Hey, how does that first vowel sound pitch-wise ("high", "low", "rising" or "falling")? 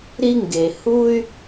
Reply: high